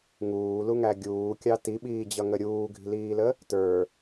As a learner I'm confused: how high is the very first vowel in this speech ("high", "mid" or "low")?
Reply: high